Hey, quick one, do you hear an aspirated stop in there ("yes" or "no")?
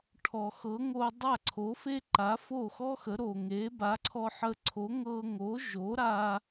yes